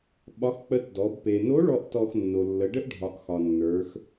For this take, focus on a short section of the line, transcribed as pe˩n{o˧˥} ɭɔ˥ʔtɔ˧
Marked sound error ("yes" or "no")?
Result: no